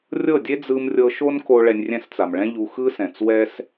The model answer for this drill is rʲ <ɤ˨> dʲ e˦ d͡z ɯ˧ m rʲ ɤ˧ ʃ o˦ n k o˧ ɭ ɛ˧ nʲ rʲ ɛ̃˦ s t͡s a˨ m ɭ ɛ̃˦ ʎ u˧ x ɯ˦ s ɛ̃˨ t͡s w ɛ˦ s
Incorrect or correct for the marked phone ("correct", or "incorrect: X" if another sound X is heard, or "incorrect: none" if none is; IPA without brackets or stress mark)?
incorrect: ɤ˦˨